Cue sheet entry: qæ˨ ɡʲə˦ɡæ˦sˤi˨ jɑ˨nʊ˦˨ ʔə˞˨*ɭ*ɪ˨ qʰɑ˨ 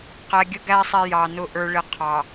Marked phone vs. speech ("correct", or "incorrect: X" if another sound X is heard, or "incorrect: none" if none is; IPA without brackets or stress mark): correct